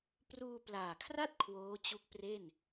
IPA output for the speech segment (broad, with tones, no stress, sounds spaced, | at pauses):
p r uː˧ p l aː˨˩ kʰ r a˥˩ t̚ kʰ w oː˦˥ t͡ɕ u˦˥ k̚ p r e˥˩ n